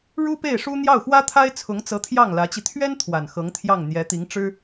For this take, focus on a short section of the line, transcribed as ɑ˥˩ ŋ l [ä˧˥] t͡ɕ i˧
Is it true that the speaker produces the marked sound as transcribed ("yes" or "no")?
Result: yes